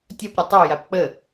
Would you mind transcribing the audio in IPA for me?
tʲ ʌ p ɾʲ ʌ tˤ ə ʊ̯ j a p k͡p ə

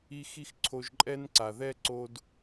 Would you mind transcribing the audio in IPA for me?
i˧ x i˦ x ǀʰ o˧ ʒ ǃʼ ɛ˦ n ǀ a˨ ð ɛ˦ ǀ o˧ d

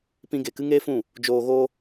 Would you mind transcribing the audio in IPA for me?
p ĩ˧ ɡ e˨ k ɨ˦ ŋ eː˦ f ũ˦˨ | d͡ʒ oː˧ ɣ o˧

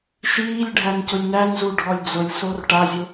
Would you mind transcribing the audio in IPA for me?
ʃ iː lʲ ɖʱ æ n c ʊ lʲ n æ n z u ɖʱ ɔ lʲ d͡z ʊ lʲ s o r ʈ a zʲ ʊ

